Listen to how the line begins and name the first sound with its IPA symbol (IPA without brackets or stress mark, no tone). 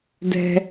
d